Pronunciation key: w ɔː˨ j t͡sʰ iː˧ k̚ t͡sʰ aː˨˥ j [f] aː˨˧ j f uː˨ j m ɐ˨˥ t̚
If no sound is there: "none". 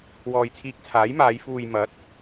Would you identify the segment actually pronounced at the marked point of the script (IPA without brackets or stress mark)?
m